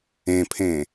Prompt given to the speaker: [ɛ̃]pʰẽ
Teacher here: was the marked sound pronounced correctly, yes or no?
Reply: no